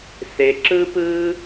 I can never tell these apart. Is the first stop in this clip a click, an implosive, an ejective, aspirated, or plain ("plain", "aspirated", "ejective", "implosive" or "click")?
click